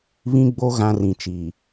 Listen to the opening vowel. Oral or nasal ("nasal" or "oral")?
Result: nasal